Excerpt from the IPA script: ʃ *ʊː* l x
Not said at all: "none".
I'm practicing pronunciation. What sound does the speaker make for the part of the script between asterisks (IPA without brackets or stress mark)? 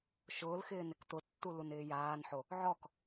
ʊː